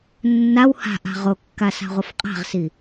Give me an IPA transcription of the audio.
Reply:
nː a w h a̤ ʔ a̤ ʁ o kː a s a̤ ʁʷ ʌ f qʼ a̤ ʁ s i

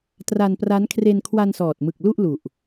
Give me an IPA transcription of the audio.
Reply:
t r a˧ n p r a˦˥ n kʰ r e˧ n kʰ w a˧ n s ɔː˨˩ t̚ m ɯ˨˩ k̚ l u˥˩ ʔ l u˨˩ ʔ

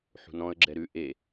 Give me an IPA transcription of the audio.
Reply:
ħ ṳ n ɔ̃ ə̯ ɡ͡ǁ ɛ ɾ ʉ ʔ e

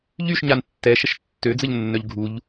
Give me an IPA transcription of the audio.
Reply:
ʎ y ʃ ɲ a n tː ɛ ʃ ə ʃ tː ø d͡z ə ʎ nː œ ʎ ɡʱ u ʎ

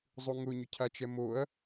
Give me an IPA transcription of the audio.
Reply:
zˤ u ŋ ʊ ɲ ʊ cʰ a t͡ʃ ɛ m o ɐ̯

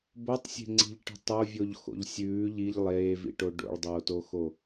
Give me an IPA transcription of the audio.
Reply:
b o tˤ sʲ e̤ ŋ͡ǀ i̤ ʎ ʈ i̤ tˤ o vʲ o ʎ x o̰ ʎ sʲ ʉː ʎ i ʎ lˠ eː v ḭ ʈ o ɖ o̰ ɭ dˤ oː t o x o

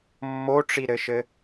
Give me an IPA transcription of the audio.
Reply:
mː o ʈ͡ʂ i ɾ ɘ ʃ ɘ

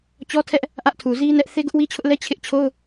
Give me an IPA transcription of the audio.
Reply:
t͡ɕ ɔ˦ tʰ ɛ˦ ʔ | ʔ ä˦ ʔ tʰ u˨ z i˦ n ɛ˦ ʔ θ e˦ ɡ ʊ˦ ʔ w i˦ t͡ɕʰ ʊ˦ ʔ l ɛ˦ t͡ɕʰ ɪ˦ ʔ t͡ɕʰ o˦ ʊ̯

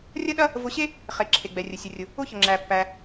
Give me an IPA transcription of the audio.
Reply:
rʲ ɐ˥ ɗ ɐ˥ | v ʊ˧ ɕ e˥ | χ e˩ ǁʰ e˩ ɡ͡b ɛ˩ rʲ ə˩ sʲ ə˩ rʲ ʊ˩ | ʊ˥ ç ə˩ ŋ͡ǁ æ˩ pː æ˩

